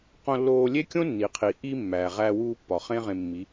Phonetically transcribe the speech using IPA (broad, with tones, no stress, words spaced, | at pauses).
qõ˧lːoː˧ lʲe˦kʲõ˦ nːi˨qʰi˨ ʔi˧ mːæː˨ʁæː˧wuː˧pːɒ˨ χẽ˦ʁẽ˧mːi˨˦